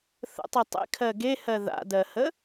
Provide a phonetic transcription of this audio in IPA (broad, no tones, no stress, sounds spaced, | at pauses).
θ ə̰ tˤ ɯ tˤ ḛ kʰ ɜ ɡ e h ɜ ð a̰ d ɜ h ə